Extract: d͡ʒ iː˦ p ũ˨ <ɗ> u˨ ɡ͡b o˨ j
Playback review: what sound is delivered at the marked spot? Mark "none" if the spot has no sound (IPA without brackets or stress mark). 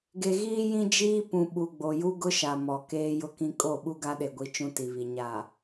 ɓ